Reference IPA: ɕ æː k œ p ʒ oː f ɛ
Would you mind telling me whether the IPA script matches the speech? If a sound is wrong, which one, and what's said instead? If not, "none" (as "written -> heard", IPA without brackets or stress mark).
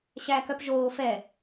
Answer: none